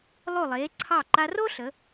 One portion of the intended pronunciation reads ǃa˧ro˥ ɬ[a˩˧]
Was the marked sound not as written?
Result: yes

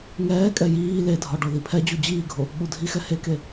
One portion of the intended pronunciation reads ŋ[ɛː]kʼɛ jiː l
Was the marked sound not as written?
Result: no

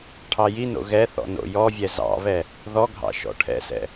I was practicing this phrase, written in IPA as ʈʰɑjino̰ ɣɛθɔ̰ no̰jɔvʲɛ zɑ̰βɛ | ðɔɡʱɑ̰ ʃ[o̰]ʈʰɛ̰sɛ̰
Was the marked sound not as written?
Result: yes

